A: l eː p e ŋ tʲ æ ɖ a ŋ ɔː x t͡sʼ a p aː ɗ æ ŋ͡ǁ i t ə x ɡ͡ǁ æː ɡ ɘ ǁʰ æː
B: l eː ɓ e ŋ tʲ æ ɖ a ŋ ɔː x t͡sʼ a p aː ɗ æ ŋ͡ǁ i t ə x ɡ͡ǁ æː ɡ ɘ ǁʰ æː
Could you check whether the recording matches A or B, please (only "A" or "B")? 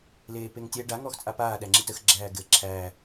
A